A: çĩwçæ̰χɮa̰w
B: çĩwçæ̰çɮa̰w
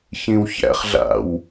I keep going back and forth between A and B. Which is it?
A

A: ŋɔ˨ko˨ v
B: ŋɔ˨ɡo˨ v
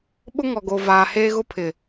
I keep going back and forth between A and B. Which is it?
B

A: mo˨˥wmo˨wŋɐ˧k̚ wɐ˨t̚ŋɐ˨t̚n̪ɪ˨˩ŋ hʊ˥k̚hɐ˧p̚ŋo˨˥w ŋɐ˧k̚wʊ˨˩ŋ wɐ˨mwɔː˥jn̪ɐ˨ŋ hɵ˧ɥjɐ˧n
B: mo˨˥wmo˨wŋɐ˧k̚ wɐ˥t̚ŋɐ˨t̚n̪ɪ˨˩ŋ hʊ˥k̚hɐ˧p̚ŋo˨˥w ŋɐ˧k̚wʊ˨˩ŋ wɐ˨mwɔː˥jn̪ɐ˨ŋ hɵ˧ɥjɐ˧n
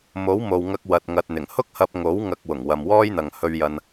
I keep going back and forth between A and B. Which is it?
A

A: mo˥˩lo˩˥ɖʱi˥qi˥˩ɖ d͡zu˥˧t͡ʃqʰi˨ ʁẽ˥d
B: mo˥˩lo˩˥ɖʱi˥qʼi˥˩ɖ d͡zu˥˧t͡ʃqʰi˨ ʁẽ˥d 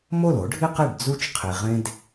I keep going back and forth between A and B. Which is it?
A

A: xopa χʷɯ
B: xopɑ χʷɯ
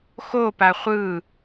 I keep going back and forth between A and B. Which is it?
A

